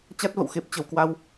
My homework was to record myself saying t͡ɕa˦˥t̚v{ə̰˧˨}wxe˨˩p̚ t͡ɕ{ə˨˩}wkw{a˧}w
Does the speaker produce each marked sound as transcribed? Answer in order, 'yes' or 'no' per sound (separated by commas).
yes, yes, yes